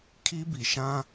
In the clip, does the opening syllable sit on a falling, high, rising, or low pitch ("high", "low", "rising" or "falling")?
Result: high